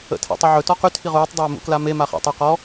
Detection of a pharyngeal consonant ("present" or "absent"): present